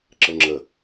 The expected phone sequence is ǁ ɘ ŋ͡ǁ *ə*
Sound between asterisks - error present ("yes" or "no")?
no